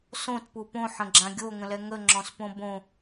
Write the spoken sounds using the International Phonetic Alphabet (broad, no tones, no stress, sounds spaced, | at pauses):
s õ t p u p õ ħ ə̃ ɡ͡ǁ ã ɡʲ o ŋ ə̃ l ɛ ŋ ə ŋ͡ǁ ɔ̃ s p õ b õ